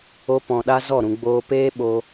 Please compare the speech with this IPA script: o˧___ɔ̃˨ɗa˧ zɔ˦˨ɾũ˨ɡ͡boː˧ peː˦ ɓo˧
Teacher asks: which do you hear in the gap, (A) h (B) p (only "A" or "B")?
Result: B